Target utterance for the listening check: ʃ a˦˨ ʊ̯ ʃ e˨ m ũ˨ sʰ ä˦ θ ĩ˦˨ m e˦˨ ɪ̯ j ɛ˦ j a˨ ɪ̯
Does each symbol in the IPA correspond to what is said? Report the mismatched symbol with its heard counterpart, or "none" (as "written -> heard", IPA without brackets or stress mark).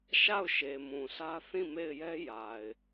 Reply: none